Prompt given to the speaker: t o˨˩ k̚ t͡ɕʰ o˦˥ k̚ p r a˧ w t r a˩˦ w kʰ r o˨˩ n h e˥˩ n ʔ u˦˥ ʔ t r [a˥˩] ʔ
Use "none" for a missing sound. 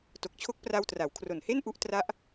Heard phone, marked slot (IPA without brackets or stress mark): a˦˥